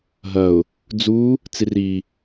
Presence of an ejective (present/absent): absent